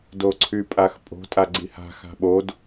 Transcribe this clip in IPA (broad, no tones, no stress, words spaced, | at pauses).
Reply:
doǀʰypʼaxpʼo̤ tʼaɡ͡ǀiha̤ xa̤ɓod